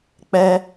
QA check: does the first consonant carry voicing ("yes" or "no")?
no